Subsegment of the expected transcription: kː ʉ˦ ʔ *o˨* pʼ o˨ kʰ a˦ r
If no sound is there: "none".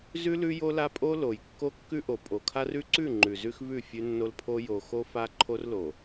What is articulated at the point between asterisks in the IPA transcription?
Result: o˨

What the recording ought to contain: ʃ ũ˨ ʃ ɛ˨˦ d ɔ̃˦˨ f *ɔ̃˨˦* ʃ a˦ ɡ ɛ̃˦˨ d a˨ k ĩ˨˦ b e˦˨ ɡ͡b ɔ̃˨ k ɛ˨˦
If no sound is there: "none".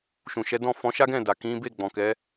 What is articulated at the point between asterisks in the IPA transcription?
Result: ɔ̃˨˦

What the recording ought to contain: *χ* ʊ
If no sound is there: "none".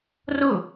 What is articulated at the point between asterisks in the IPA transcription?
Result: r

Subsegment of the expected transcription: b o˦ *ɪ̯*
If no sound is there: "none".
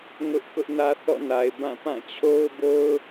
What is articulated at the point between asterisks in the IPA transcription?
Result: ʊ̯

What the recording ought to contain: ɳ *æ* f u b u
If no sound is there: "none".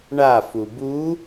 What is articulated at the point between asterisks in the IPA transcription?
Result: a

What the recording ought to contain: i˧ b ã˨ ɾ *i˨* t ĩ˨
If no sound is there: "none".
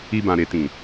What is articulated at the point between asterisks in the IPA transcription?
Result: e˨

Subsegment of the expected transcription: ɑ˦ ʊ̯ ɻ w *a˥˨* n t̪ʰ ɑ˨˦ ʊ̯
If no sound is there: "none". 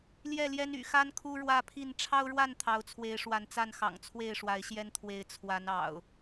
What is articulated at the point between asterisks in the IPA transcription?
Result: a˥˨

